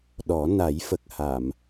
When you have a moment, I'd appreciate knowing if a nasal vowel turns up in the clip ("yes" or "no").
no